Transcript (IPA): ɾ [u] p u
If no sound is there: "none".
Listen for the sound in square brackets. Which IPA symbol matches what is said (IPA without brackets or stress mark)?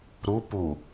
u